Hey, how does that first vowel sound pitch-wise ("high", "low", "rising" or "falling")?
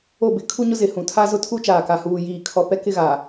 falling